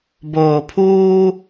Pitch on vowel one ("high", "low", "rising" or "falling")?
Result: low